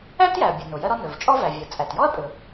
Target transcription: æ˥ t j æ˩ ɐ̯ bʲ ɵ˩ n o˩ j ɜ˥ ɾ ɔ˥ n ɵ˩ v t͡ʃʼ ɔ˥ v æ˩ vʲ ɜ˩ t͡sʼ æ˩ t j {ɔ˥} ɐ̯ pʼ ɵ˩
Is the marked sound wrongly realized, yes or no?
no